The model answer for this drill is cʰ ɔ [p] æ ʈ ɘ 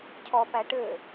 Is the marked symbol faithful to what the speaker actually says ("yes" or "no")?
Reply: yes